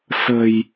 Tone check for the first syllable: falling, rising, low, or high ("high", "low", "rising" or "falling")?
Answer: low